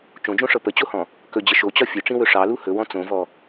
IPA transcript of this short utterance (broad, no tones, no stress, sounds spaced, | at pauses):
t͡ʃ õ d͡ʒ õ ʂ ɤ p ə t͡ɕ o h ɔ̃ | k ɵ d͡ʑ ə ʃ o t͡ɕ ɒ fʲ ɵ ʈ͡ʂ ĩ w ɵ ʂ ɑ l u h ɵ w ɔ̃ t͡s õ v ɔ